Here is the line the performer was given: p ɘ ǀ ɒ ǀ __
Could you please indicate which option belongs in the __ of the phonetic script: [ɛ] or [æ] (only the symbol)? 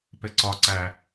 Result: æ